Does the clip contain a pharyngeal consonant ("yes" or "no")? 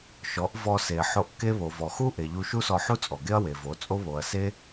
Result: yes